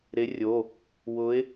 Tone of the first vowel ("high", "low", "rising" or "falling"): rising